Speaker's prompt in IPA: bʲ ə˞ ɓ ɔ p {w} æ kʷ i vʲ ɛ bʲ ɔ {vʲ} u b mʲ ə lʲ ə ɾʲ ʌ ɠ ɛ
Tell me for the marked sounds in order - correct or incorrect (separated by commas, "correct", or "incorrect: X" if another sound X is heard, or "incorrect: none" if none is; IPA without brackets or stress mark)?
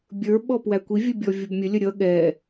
correct, correct